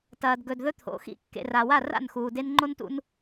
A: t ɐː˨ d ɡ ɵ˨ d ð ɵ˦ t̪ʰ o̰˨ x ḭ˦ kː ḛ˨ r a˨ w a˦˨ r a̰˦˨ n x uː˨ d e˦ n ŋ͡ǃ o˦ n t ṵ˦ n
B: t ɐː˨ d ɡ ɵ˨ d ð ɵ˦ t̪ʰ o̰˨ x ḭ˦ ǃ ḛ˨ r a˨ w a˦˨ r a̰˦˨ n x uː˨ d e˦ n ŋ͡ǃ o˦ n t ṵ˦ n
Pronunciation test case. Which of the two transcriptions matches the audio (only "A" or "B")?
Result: A